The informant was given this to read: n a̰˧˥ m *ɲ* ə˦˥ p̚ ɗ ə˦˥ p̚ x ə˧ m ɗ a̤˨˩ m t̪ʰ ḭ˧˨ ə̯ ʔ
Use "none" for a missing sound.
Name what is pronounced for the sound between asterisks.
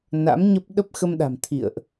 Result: ɲ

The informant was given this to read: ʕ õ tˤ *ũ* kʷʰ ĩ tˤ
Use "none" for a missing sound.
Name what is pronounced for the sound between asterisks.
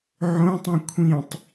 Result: ũ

